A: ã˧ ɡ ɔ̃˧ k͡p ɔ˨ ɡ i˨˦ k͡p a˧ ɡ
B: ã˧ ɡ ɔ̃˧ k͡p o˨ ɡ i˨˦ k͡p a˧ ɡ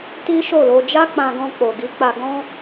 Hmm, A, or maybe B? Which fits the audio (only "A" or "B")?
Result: B